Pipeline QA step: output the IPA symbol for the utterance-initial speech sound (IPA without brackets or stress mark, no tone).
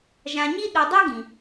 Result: ʒ